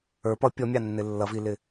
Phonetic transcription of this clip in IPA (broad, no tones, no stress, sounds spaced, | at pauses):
ə˞ p ʌ pʲ ɔ mʲ ɑ nː ɪ lː ʌ v i l ɪ